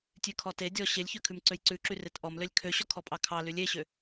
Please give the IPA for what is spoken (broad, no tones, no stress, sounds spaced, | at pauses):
tʲ ʉ kʰ ɔ t e dʲ ɔ ɕ e lʲ ç ø kʰ ʉ m ǀ ø j ǀ ʉ ǁ y r e t ʔ ɔ m l ø lʲ kʰ ø ɕ ɔ kʰ ɔ pʼ ɑ kʰ ɑ l y lʲ e ɕ ø